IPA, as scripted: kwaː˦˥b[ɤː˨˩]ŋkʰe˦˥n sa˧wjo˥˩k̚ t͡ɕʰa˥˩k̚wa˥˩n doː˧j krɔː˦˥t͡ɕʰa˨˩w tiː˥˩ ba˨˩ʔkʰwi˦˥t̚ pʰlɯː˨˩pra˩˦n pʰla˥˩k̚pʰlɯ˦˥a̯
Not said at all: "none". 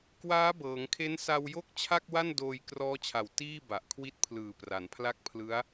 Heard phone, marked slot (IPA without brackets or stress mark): ɤː˩˦